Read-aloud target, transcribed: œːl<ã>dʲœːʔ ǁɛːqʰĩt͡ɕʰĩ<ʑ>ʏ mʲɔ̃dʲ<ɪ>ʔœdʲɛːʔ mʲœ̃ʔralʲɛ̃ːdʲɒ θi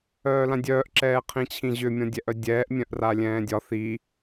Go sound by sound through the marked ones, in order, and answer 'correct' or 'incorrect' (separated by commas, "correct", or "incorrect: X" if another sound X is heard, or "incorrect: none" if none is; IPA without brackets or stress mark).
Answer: correct, correct, incorrect: ɛ